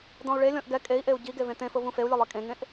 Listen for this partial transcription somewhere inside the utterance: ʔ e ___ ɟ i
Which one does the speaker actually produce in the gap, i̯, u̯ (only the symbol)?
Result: u̯